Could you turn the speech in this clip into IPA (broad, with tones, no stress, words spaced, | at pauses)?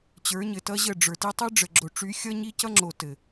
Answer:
t͡ɕə˞˨˦ɲɘ˨tʌ˦ʑə˦˨ ɖ͡ʐə˞˨ti˦ tˤi˦ɖ͡ʐə˨ɡ͡ǁo˨ʈ͡ʂy˨˦ xʲʌ˦ɲi˦cʌ˦ŋ͡ǁo˨ tɘ˨